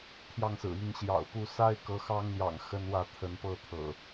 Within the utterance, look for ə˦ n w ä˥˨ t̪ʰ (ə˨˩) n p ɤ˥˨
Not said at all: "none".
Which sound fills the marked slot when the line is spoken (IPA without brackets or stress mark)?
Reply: ə˨˦